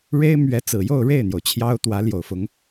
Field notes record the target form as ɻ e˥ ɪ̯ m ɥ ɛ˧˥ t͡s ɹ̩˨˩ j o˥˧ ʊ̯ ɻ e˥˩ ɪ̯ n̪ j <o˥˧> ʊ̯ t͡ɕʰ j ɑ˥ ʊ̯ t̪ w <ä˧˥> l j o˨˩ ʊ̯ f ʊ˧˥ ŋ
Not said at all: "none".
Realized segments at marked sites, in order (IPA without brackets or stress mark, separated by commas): o˩, ä˧˥